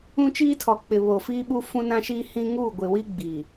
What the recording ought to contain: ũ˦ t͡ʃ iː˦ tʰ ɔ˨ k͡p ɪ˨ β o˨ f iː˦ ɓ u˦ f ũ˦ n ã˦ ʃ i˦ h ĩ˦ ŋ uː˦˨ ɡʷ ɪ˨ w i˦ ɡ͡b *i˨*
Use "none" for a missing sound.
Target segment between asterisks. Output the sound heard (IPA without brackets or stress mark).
i˨